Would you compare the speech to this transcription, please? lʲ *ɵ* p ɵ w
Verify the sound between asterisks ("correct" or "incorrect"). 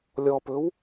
incorrect